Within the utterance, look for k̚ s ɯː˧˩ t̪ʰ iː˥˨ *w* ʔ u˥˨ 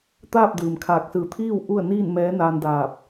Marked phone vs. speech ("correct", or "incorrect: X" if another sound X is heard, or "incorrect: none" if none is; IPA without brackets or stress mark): correct